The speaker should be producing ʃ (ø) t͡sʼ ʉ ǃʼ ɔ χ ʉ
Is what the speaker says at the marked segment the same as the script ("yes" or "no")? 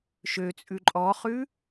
yes